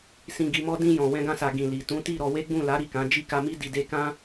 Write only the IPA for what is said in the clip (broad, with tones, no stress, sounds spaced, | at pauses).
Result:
s ĩ˧ ɡ i˧ m ɔ˦ d ĩ˧ j ɔ̃˨ w ɛ̃˧ ɡ ã˧ s a˨ ɡ ĩ˨ l i˨ t ũ˨˦ t i˦˨ ɾ ɔ˧ w e˦ ɡ͡b ũ˦˨ l a˨˦ ɾ i˦˨ k ã˨˦ d͡ʒ i˦˨ k a˧ m i˦ d i˧ d e˦ k ã˦